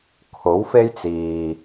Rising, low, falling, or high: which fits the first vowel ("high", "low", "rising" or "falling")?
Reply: rising